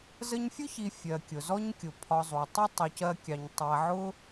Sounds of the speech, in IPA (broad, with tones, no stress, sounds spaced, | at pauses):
z ə˦ ɲ fʲ ʊ˥ ç i˨ fʲ ɜ˩ kʲ ʊ˩ z ɔ˦ ɲ kʲ ʊ˩ pʰ ɒ˨ zˤ u˩ ə̯ tˤ ʌ˥ tˤ u˩ c ɜ˨ kʲ ɑ˩ ɲ tˤ æ˨ ʕ ʊ˦